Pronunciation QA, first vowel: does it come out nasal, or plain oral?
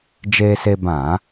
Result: oral